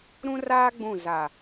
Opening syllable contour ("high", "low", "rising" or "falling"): high